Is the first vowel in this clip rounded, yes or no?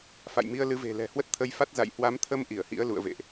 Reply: no